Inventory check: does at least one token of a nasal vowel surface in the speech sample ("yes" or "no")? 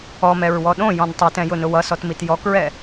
yes